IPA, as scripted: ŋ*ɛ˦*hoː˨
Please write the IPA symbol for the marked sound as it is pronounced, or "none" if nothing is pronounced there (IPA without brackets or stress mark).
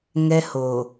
ɛ˦